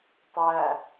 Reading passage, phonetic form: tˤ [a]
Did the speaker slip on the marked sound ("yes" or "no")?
yes